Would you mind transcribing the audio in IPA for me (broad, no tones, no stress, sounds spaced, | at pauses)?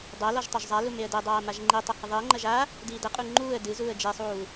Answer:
dˤ ɛ l ɔ ʒ tˤ o ʒ zˤ a l u m e ə̯ d e dˤ aː m a ʒ ŋ͡ǃ i tˤ ɐ h ɨ ðˤ i ə̯ ŋ͡ǃ ɐ ʒ a | d iː d ɐ qʼ u ŋ͡ǃ uː ə̯ d ɨ z uː ə̯ d͡ʒ e sˤ uː